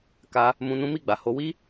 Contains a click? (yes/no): no